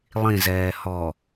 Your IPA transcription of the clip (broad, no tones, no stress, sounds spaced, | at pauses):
lˠ ĩ z ɛː h ɔ